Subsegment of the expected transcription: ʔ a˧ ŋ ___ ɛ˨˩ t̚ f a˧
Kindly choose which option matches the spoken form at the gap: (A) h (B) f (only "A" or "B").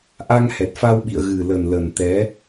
A